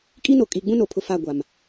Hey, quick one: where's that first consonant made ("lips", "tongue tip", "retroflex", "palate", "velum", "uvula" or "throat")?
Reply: velum